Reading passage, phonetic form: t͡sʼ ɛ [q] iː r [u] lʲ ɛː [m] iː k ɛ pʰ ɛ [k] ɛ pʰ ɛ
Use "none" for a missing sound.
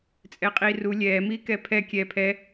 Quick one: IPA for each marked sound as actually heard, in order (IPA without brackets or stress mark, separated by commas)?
qʼ, u, m, kʲ